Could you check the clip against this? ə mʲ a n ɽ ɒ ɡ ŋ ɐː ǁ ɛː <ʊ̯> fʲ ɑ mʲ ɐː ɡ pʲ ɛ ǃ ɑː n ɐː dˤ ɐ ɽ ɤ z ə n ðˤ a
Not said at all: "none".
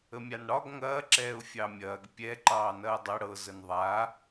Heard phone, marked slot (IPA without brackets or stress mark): ʊ̯